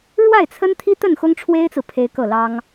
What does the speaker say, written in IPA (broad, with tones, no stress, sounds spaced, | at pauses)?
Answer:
ɻ w a˥˩ ɪ̯ t͡sʰ ə˥ n t̪ʰ i˥ t̪ ə˥˩ n x ʊ˥ ŋ ʈ͡ʂʰ w e˥ ɪ̯ t͡s ɹ̩˨ pʰ e˥ ɪ̯ k ɤ˥˩ l ɑ˥ ŋ